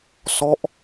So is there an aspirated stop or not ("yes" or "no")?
no